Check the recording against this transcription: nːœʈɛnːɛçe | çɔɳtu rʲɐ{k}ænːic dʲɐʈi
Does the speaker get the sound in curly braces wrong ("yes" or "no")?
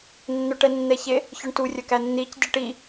no